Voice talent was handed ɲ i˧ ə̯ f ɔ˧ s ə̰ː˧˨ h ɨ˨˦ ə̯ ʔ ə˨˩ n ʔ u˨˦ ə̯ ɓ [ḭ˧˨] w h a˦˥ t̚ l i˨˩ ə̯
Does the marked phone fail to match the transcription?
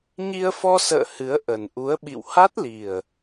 no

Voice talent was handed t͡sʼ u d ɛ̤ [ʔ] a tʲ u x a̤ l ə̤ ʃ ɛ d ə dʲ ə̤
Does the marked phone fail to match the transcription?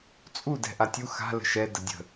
no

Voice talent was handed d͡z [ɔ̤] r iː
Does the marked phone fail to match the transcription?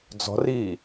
no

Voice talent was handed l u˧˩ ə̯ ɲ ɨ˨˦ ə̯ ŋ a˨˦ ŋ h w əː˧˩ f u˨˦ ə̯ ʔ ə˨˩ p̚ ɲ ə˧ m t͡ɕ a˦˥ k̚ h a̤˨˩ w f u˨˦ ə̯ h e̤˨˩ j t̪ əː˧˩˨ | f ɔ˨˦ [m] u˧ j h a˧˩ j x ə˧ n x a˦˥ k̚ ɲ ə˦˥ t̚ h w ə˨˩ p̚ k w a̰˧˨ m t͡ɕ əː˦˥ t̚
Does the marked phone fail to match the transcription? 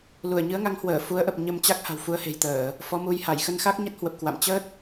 no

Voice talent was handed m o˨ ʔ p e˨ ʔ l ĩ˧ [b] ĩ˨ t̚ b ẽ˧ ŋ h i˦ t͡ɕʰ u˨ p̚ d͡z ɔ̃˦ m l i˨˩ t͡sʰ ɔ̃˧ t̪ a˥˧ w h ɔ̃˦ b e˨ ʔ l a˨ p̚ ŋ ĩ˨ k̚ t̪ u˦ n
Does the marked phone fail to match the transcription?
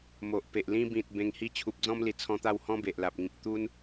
no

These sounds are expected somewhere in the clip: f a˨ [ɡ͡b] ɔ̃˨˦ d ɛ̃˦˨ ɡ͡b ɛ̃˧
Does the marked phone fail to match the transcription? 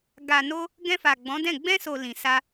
no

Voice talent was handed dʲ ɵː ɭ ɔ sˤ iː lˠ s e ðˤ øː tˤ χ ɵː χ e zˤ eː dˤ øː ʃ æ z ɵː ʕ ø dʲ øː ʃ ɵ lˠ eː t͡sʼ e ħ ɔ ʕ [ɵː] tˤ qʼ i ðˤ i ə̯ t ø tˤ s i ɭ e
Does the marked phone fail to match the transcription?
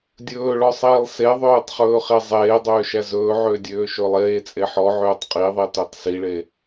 yes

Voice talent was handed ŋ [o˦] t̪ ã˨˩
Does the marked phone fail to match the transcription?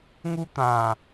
yes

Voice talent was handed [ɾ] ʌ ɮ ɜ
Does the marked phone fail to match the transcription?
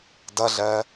yes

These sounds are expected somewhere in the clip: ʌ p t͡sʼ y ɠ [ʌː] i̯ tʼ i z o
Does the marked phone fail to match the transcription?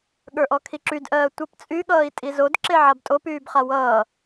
no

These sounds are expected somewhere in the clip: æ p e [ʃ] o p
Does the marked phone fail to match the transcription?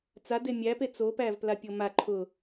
yes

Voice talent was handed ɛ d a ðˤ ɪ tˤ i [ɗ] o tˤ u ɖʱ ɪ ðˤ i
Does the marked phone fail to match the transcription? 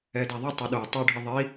no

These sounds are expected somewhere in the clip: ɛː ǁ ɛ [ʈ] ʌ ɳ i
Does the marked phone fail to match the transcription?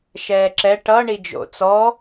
no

